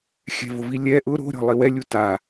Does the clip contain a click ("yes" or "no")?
no